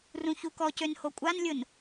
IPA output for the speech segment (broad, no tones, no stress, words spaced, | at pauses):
rũçukɔcøn hokʷʼanlʲʊn